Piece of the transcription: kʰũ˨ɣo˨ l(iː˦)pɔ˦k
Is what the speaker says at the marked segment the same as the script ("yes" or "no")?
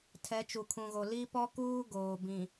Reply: no